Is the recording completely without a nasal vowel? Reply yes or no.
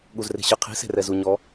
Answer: yes